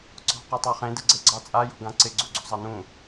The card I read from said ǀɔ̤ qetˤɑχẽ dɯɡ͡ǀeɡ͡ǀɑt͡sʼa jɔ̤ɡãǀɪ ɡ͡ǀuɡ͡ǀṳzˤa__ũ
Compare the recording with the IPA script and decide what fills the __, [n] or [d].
n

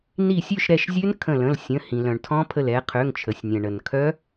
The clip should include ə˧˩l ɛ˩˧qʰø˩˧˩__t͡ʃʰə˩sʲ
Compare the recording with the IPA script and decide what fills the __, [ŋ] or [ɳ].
ŋ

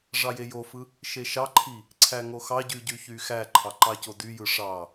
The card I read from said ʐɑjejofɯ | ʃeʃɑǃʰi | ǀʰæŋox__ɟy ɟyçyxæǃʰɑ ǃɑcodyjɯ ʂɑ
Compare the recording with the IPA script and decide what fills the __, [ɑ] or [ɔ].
ɑ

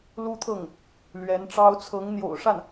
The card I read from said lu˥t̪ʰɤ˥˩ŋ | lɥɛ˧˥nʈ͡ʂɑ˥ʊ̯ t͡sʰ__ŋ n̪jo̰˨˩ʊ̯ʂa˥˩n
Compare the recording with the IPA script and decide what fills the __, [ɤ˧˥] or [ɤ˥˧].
ɤ˧˥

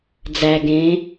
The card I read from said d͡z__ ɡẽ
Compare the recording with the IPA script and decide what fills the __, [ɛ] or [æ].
æ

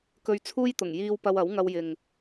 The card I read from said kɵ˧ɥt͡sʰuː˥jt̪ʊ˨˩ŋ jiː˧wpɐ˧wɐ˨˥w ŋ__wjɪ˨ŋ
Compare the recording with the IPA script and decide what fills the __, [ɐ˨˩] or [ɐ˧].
ɐ˧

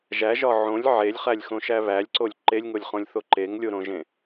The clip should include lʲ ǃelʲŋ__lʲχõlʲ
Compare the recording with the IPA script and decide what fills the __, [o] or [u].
o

